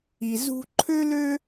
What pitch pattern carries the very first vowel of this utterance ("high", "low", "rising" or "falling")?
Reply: low